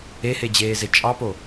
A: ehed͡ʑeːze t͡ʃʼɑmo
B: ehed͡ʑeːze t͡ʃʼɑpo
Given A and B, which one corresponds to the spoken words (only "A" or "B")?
B